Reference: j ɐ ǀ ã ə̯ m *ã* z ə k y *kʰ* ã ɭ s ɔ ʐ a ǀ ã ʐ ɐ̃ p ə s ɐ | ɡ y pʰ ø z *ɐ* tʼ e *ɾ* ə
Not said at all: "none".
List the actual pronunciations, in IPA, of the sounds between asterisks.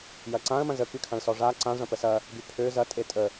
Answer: ɐ̃, kʰ, ɐ, tʼ

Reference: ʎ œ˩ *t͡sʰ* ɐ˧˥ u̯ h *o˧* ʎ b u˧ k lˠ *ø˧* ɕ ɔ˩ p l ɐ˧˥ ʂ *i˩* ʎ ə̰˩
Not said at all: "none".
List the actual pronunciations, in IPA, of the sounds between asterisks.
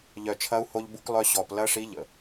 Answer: t͡ʃʰ, o˧, œ˧, i˧˥

